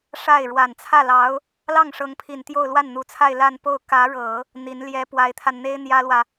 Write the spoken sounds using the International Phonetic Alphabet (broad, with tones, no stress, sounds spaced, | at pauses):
ʂ a˥˩ ɪ̯ ɻ w a˨˩ n t͡sʰ ä˥˩ l ɑ˧˥ ʊ̯ | l ɑ˥˩ ŋ ʂ ɤ˧˥ ŋ pʰ i˨˩ n t̪ j o˥˧ ʊ̯ l w a˥˩ n n̪ u˧˥ t͡sʰ a˥˧ ɪ̯ l a˥˧ n p o˥˩ ʊ̯ k ä˧˥ ɻ ɤ˨˩˦ | n̪ i˧˥ n l j ɛ˧˥ p w a˧˥ ɪ̯ t̪ʰ a˧ n n̪ e˥ ɪ̯ n̪ j ä˥ l w ä˨